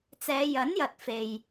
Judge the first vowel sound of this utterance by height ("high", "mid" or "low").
mid